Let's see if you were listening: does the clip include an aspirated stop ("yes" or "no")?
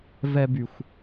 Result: no